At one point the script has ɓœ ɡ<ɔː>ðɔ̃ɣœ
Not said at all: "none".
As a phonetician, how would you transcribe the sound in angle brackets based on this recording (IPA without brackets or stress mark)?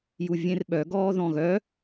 ɔː